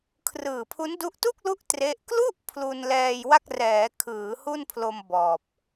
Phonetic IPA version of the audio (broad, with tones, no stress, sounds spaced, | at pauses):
kʰ r ɯː˨˩ pʰ u˦˥ n d u˦˥ ʔ t u˥˩ k̚ l u˦˥ ʔ t r e˦˥ ʔ k l u˥˩ ʔ pʰ l u˧ n l ɛː˧ j w a˥˩ k̚ r ɛː˩˦ kʰ ɯː˩˦ h u˥˩ n pʰ l o˧ m b ɔː˨˩ p̚